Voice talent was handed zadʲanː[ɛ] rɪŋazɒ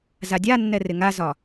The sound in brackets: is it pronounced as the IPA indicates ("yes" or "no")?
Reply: yes